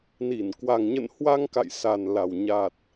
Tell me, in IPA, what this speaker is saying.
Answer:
n i˧˩ n k w a˨˩ ŋ ɲ ə̰˧˨ n h w a˧ ŋ k a̰˧˨ j s a˨˩ n l a˨˩ w ɲ a˨˩ t̚

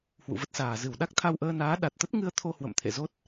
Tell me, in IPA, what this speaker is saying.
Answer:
h w ṵ˧˨ v ə˦˥ t̚ s aː˨˩ z ɨ˧˩ w ɗ a˦˥ k̚ t̪ʰ a˧ w ʔ əː˧ n aː˨˦ ɗ a˨˩ t̚ t̪ ə˦˥ t̚ ŋ ɨ˧ ə̯ t̪ʰ o˧ h w ə̰˧˨ m t̪ʰ ḛ˧˨ z o˦˥ t̚

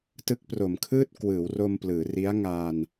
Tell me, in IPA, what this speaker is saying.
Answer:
t ɯ˦˥ k̚ p r o˩˦ m kʰ ɯː˥˩ t̚ k w ɯː˩˦ w r o˧ m p l ɯː˩˦ r i˦˥ a̯ ŋ aː˧ n

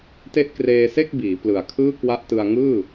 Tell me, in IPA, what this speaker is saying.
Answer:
t e˦˥ ʔ k r eː˧ s e˥˩ k̚ b iː˩˦ p l ɯ˨˩ a̯ kʰ ɯː˥˩ k w a˦˥ ʔ t ɯ˧ a̯ ŋ ɯː˥˩

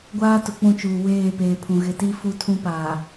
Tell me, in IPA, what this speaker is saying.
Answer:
ɡʷ aː˦ t ʊ˨ k͡p ũ˦˨ t͡ʃ uː˨ w eː˦˨ p eː˨ pʰ ũ˨ ɣ ɪ˨ t i˦ f u˦ tʰ ũ˦ p aː˨

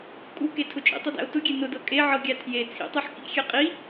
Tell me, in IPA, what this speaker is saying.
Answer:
kʼ u k e tʰ ʊ t͡ʃʼ ḭ tˤ ɤ d æ̰ o̯ t ʊ ɡʲ e n ʊ d ɤ kʼ e ʕ ɤ ɡʲ æ tʰ j e t͡sʰ ḭ tˤ e ħ k ḭ xʲ e qʼ i

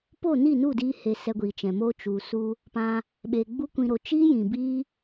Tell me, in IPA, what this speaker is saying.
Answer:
p o˦˨ n i˦˨ n u˦˨ d iː˧ h e˨ s ɛ˧ ɡʷ iː˨ t͡ʃ ɛ̃˨ m o˦ t͡ʃ u˨ s u˧ | p ã˧ | ɓ e˨ ɡ͡b u˦ kʷ ĩ˧ ɾ o˧ t͡ʃ iː˦ j ĩ˨ b iː˦

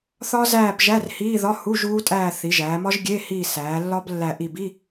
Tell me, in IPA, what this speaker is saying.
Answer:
θ ɒ˦˥ z æː˦˨ b ʒ æ˧˥˧ r h iː˧˥˧ ð ɒ˧˥˧ h u˧˥˧ ʒ uː˦˥ tʼ æː˦˨ θ i˩˧ ʒ æː˩˧ m ɒ˦˥ ʒ ɡʲ e˧˥˧ h iː˦˨ s æː˩˧ lː ɒ˦˥ b lː æ˦˨ ʔ i˦˨ b i˧˥˧

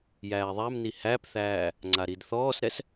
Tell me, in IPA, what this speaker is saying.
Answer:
j æː ðˤ æ m n i h æ p θ æː | ŋ͡ǀ a ɾ i d θ ɔː s ɾ ɛ s

